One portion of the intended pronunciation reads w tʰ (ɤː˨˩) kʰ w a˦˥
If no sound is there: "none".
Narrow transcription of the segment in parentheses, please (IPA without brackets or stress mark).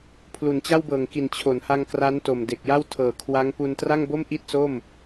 ɤː˨˩